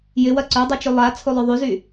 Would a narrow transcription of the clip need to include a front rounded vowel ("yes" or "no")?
yes